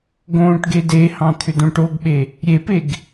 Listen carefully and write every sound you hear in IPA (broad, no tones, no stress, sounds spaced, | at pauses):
ɡ õː ʈ ɡ e d e h ɑ̃ t̪ʰ ʏ d õ ʈ o ɡ ɓ e | ɾʲ e p e ɡ